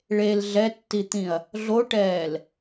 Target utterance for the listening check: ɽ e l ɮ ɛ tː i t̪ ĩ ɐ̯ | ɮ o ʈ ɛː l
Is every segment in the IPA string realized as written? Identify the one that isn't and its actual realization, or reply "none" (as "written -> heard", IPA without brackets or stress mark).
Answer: ɽ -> ɭ